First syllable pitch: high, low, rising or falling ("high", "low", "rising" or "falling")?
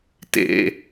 low